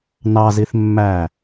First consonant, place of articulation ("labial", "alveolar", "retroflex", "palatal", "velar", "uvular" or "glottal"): alveolar